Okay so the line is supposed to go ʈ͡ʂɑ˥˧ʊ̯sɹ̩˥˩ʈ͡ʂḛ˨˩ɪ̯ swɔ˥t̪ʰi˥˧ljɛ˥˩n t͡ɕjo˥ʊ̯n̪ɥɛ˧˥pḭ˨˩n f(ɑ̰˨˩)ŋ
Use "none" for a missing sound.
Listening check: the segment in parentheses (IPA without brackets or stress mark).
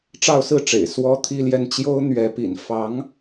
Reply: ɑ˧˥